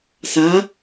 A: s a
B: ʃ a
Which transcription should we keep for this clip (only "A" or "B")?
A